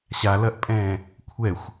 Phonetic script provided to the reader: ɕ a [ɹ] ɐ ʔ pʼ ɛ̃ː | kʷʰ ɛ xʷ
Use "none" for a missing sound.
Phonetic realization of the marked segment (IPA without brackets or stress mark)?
l